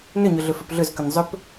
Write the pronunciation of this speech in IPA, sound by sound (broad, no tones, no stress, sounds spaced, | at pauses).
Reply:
n ʏ ɲ ʏ ɮ ʏ f ʏ p ɮ ʏ z k ʏ n zˤ ʏ p